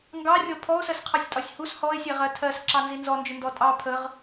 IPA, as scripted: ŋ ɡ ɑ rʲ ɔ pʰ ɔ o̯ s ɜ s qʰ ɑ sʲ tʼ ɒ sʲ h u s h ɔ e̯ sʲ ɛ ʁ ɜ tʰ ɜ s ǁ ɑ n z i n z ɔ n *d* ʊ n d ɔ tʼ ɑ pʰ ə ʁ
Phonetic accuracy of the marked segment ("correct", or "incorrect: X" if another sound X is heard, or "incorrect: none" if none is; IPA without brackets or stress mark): incorrect: d͡ʒ